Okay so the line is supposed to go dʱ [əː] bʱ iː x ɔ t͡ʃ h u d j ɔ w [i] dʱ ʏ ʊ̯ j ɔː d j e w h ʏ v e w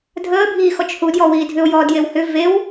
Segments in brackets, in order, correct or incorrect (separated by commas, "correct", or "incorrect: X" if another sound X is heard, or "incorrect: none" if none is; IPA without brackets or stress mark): correct, incorrect: iː